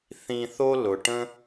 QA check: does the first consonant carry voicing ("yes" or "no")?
no